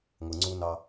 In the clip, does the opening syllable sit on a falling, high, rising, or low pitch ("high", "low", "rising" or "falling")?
low